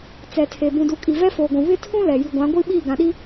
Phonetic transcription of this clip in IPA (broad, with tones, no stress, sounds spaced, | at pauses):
t͡s ɛ˨ tʰ e˨ b ũ˨ d u˨ kʼ i˨ v ɛ˦ f oː˨ ɡʷ ũ˨ β ɪ˦ tʰ ũ˦ l ɛ˨ j i˨ ɡʷ ã˨˦ ɡʷ i˦ ɓ iː˦˨ ɡ ã˨ ɗ i˦